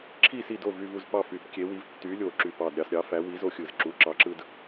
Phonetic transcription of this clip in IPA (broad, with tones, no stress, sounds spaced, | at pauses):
ǁʰ i˥˨ s i˥˨ d o˥˨ v y˦ v u˦ z p ɑ˥˨ f y˨˩˦ p kʲ e˨˥ w i˨˥ v tː y˨˥ lʲ o˨˩ ǁ y˨˩ p ɑ˨˩ d ɾʲ ɑ˥˨ s ɾʲ ɑ˨˥ f æ˨˥ w i˨˥ z o˦ xʲ ɯ˨˩ z ǁ u˨˥ ǁ ɑ˨˥ ǁ ɯ˦ d